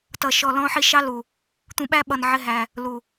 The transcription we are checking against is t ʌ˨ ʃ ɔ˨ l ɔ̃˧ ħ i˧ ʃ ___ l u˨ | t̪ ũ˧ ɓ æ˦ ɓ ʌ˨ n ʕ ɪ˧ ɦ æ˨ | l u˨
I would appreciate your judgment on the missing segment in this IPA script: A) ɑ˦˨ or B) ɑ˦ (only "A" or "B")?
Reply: B